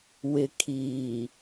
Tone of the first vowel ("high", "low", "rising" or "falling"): low